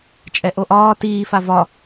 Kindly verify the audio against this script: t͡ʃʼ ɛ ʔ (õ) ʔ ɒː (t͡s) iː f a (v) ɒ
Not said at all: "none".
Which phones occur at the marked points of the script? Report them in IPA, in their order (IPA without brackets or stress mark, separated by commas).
o, t, v